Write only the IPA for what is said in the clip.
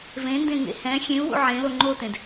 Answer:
v ẽ n d ẽ ŋ ḛ h ɛ̃ xʲ ẽ u̯ w ṵ ʕ ẽ l o ŋ͡ǃ o t ẽ d

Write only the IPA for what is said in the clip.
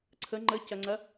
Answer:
ǀʰ ə ŋ͡ǃ ə c ɐ ŋ͡ǀ ɐ

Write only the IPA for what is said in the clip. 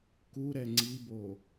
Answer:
k u ɾ ɛ ŋ͡ǀ i b o

